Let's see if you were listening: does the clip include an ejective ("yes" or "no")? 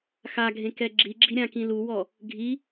no